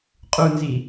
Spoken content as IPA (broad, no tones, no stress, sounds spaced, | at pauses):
qʼ u n z i